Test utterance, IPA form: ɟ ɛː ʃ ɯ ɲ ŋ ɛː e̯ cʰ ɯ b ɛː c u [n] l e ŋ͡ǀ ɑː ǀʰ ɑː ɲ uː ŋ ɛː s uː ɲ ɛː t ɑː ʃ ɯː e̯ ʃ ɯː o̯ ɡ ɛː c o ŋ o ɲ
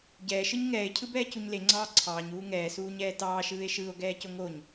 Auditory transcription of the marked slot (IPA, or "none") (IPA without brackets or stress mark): ɲ